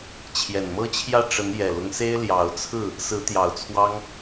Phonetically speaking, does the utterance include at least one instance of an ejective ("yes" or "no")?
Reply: no